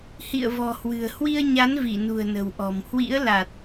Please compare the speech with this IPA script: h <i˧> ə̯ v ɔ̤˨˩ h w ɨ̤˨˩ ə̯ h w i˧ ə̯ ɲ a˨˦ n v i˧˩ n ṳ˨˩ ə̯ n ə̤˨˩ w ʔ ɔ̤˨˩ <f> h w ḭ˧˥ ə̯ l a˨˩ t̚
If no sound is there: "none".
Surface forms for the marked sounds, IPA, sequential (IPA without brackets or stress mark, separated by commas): ḭ˧˨, m